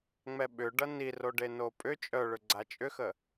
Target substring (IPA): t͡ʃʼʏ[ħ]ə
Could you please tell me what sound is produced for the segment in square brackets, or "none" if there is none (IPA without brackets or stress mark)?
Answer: x